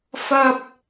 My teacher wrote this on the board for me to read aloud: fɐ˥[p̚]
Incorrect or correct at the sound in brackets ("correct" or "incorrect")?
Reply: correct